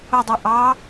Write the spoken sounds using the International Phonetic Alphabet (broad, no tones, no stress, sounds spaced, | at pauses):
ʊ dˤ u ʔ ɑ